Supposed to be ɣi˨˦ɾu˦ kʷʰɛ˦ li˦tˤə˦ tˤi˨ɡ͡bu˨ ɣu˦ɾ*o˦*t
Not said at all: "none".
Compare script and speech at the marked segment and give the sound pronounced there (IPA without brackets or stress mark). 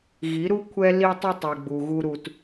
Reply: u˦